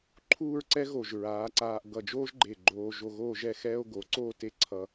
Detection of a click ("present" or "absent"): present